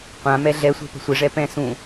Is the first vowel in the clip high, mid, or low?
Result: low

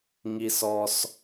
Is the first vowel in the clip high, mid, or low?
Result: high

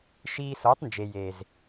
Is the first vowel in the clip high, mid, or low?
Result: high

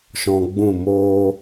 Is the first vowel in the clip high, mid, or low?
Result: mid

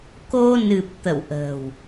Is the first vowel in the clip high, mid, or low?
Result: mid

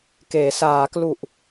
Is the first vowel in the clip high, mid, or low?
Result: mid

